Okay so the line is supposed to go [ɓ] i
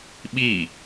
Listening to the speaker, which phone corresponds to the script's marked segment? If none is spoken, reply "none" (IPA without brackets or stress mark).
ɓ